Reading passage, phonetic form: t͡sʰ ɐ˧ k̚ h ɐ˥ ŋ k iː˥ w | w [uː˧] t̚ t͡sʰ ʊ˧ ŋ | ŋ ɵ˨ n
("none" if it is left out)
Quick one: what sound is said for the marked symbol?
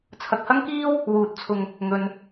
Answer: uː˧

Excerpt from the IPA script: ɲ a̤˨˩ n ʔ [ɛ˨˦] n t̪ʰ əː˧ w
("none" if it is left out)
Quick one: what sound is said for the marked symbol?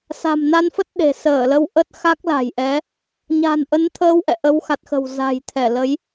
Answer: ə˨˦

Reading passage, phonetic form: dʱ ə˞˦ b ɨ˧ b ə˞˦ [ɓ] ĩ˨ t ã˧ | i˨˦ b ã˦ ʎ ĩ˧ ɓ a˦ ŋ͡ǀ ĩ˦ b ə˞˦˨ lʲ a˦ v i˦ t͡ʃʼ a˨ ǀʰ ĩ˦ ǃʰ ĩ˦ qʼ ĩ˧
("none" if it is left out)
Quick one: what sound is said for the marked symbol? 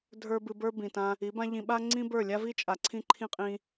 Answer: b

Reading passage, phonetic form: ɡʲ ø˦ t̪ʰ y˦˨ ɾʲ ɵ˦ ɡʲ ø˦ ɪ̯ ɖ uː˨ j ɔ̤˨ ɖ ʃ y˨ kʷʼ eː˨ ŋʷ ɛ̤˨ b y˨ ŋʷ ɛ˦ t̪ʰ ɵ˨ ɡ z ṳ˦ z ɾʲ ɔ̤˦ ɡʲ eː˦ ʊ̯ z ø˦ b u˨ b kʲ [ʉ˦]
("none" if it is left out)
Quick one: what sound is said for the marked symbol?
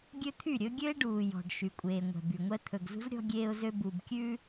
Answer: ʉ˦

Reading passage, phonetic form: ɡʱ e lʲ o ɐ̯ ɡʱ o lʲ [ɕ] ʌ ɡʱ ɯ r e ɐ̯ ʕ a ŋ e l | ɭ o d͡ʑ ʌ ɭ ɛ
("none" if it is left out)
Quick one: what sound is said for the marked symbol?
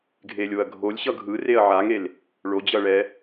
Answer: ɕ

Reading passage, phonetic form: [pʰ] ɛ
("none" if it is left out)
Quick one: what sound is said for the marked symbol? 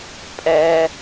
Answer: pʼ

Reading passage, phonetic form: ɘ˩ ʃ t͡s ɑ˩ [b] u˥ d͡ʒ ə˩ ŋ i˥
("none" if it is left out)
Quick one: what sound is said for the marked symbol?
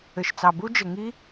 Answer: b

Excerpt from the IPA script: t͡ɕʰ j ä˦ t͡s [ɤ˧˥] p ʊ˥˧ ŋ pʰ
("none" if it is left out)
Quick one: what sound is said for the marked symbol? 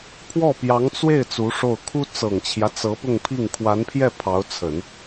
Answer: ɤ˧˥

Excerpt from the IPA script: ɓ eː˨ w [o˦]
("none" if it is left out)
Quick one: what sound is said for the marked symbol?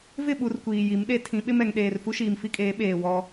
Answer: ɔ˦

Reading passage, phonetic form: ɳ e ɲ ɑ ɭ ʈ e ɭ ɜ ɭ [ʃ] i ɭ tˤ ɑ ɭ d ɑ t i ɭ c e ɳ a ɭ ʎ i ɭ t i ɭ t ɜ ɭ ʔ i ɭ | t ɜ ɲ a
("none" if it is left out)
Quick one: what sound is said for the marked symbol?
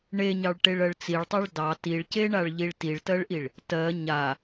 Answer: t͡s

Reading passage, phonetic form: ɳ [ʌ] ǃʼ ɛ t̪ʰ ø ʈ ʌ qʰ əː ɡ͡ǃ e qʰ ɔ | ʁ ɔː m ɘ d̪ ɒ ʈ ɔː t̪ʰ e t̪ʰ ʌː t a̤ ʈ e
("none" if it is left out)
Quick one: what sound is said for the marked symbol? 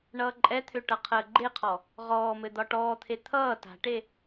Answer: ʌː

